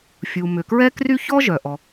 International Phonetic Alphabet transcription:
fʲu˩mʏ˩kɹɛ˥kry˥ çɔ˥ ʒœ˩ʔɔ˩

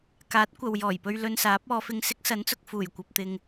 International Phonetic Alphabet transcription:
kaː˨˥t̚kʷɐ˨wjɔː˨˩jpɵ˧ɥ lɵ˧nsaː˨˥p̚ɔː˨˧fɪ˧ŋ sɪ˥k̚sɐ˨˥nt͡sʊ˨k̚ fuː˨˩jkʷɐ˨p̚t̪ɪ˨ŋ

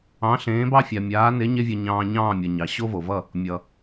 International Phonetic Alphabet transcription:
ɑ̃˨˦ɬẽː˨˦bɑ˦fʲa˨ mʲaː˨˦ne˨˦ ɲe˦vʲʌ˧ɲɑ̃ː˧ ɲɑ̃ː˦˨mʲʌ˨ɲɑ˨ ɕo˦vo˨vʌ˦˨ | mʲʌ˨

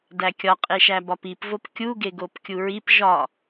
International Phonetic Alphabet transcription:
dækʲɒqʼe ʃæbɒpipvop kʲuɡeɡop kʲuɹip ʒɒ

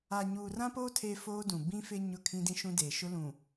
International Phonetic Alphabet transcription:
a˨ɲuː˨rã˦poː˦ tʰe˦foː˦dũ˨ bĩ˦fɪ˦ ɲʊ˦˨kʰĩ˦dĩ˦ ʃũ˦deː˨ ʃʊ˦lũ˨

